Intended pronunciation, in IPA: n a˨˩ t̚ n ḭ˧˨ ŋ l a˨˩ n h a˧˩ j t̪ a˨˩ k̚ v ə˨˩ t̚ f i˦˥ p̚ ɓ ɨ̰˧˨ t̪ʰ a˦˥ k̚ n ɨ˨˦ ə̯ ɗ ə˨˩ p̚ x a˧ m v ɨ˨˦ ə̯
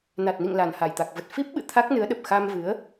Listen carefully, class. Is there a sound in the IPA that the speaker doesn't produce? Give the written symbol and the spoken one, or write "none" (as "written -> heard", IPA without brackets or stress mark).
none